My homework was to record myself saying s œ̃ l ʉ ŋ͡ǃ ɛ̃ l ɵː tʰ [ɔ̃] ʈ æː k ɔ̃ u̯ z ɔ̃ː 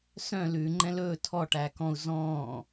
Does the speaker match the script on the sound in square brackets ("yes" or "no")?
no